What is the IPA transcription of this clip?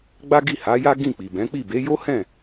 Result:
ɡ͡b a˦ ɡ i˦˨ h a˨˦ j a˦ ɡ ĩ˦˨ k͡p i˨ b ɛ̃˨˦ k͡p i˦˨ b e˨˦ j o˦ h ɛ̃˦˨

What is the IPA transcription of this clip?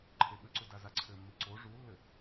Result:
ǃʰ e ɓ ɘ ǀ u d a z a ǀʰ ɘ mː i ǀ o ʐ u lː ɘ

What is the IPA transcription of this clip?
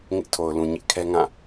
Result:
ŋ ɪ˦ ʔ tʰ o˨ ʊ̯ l ũ˨ ɲ ɪ˦ ʔ kʰ ɛ˦ ŋ ã˦˨

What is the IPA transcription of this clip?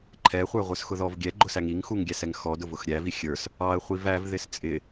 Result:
ǃʰ ɛ χʷ ə˞ ʁʷ ə˞ s x ʊ ð ɔ v ɡʲ ɛ ɡ͡ǃ ʊ s æ ŋ i ŋ x u ŋ ɡʲ æ s ɛ ŋ x ɔ d ʊ v ʊ x ɾʲ æ v i xʲ ə˞ s | ɑ ə̯ χʷ i v æ v ð ɪ s t͡sʼ ɪ

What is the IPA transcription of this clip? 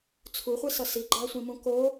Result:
t͡sʰ u χʷ e s ʌ s i ɡ͡ǃ a sʷ ĩ m ũ k o

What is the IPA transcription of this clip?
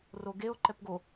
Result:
r o ɡ e o̯ ǃ ɛ p ɡ o

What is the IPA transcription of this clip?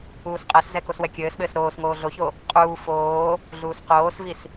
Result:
uː s qʼ ɛ s z ɛ k o s w ɛ kʲ ɘː s ɓ ɘː s ɾ oː s ŋ oː ɮ o ç o | qʼ uː f oː | ɮ uː s q oː s v i s

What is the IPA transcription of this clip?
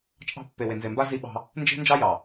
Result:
t͡ʃʼ ɑ̤˦ pː e˨ w e˨ n z e˨ m b a˦ z i˦ ɓ ɑ̤˦ | n d͡ʒ e̤˦ n d͡ʒ ɑ˦ j ɑ˨

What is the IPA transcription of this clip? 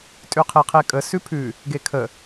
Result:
tʼ ʉ qʰ e qʰ e kʼ ə s ʉ pʰ ʉ | ɡ e kʰ ə

